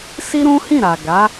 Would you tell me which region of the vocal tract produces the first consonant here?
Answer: tongue tip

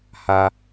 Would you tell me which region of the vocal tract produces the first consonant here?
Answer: throat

